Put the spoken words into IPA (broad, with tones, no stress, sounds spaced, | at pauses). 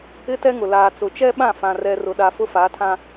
ɪ˦ t ɛ˦ ŋ ʊ˨ l aː˨ t͡s ʊ˨ t͡ʃ ɛ˦ ɓ ã˦˨ f ã˨ r ɛ˨ r ʊ˨ ɗ a˨ f ʊ˦ f a˨˦ tʰ ã˦